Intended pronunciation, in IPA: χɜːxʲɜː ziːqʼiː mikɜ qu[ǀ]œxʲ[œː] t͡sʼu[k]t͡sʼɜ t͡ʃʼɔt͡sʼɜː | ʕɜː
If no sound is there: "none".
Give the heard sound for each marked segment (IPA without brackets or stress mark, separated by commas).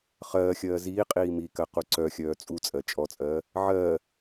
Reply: ǀ, œː, none